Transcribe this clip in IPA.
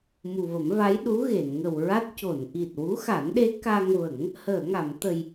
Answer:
m u˨˩ v ə˨˩˦ m v a˧˥ j ɗ u˧˥ ɣ e˨˩˨ n ŋ ə˨˩ w ɹ a˦˥ t̚ c o˨˩˨ n ʔ i˨˩ t̚ w u˧˥ x a˨˩˦ n ɗ e˧˥ k a˧ ŋ v ə˨˩˦ ŋ | h əː˨˩˨ ŋ a˨˩˨ m t̪ ə˨˩ j

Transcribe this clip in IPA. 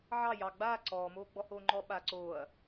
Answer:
ʕ ɑ j ɑ ɡ͡b aː ǀ ɔː m oː ɡ͡b ɔ h oː ŋ͡ǃ ɔ ɓ a ǀ oː ɐ̯

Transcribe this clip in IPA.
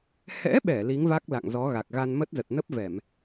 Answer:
h ɛ̰˧˥ ɓ ɛ˧˩ l i˨˦ ŋ v a˦˥ k̚ l a̰˧˨ ŋ z ɔ˨˦ ɣ a˨˩ k̚ ɣ a˧ n m ə˦˥ t̚ z ə˨˩ t̚ n ə˦˥ p̚ v ɛ˧˩˨ m

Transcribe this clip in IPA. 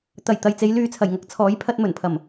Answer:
t̪ ɐ˨˩ j t̪ ɐ˨ j t͡s e˨˧ j l yː˨ t͡sʰ ɐ˨˩ j ŋ ɐ˨˥ k̚ t͡sʰ ɔː˨˥ j pʰ ɐ˧ t̚ m ɵ˨˩ n pʰ ɐ˨˩ m

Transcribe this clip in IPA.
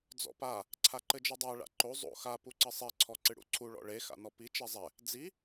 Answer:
d͡z ɔ̰ p a | ǀʰ a ǃ ɘ d͡ʒ ɨ dˤ a ɭ a̰ ǃ o zˤ o̰ x a p u ǀ ɘ sˤ e ǀʰ ɔ ǀ ɨ ɽ ṵ ǀʰ u ɭ ɔ̰ ɭ e x a̰ n ɔ p i t͡ʃ ɛ zˤ ɛ | d͡z i

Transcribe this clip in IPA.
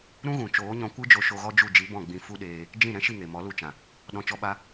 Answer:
ɾ ũ˦ ɣ ũ˨ t͡ʃ oː˨˦ ɲ ɔ̃˧ kʷ ɨ˦ d͡ʒ o˧ ʃ o˧ ɣ ɔ˦ d͡ʒ u˦˨ d͡ʒ i˨˦ b ɔ̃˦˨ ɡ͡b ĩ˧ f u˦ ɗ eː˧ | d͡ʒ ĩ˦˨ ɾ ɛ̃˦ ʃ i˦˨ ŋ e˨ m ɔ˨˦ l u˧ t͡ʃ ã˨ | ɗ ɔ̃˧ t͡ʃ ɔ˦ ɓ a˦

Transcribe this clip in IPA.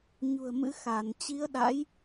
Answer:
ɲ ṳ˨˩ ə̯ m ɨ̰˧˥ x a˧˩ n t͡ɕ i˨˦ ə̯ ɗ a̰˧˥ j

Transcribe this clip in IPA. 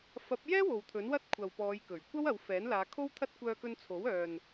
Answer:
f ɐ˨˥ p̚ j ɛː˥ w o˨ w t̪ʰ ɵ˨˥ n w ɐ˥ t̚ kʷʰ ɐ˨ w p ɔː˨˧ j k ɵ˨˩ ɥ kʷ ɐ˥ w ɐ˨˧ w f ɛː˨˥ n l aː˨˧ kʰ o˥ w t̪ʰ ɐ˥ t̚ kʷ œː˧ k ɵ˧ n t͡sʰ o˨˥ w œː˨ n

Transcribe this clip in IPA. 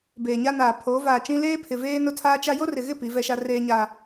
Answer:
b eː˨ ɲ a˦ n aː˨ pʰ oː˨˦ v aː˨ t͡ʃ ĩ˦ l eː˦ pʰ ɪ˨ v eː˦ n ʊ˦ tʰ aː˦ t͡ʃ a˦ j o˦ r ɪ˨ ɣ ɪ˦˨ p i˨˦ v ɛ˦ ʃ a˦ r eː˦ ɲ aː˦

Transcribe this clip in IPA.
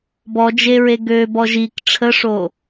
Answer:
b ɔ d͡ʒ e ɹ e ɡ ø b ɔ ʒ i k ʈ͡ʂʰ ə ʂ o

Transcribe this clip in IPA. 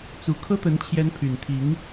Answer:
t͡s u˧˥ kʰ ɤ˥ t̪ ə˧˥ n t͡ɕʰ j ɛ˧˥ n pʰ y˨˩ n t̪ʰ i˧˥ ŋ

